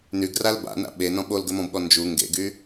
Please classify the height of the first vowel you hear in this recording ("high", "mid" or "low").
high